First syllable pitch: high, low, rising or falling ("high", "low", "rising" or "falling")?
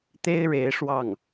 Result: high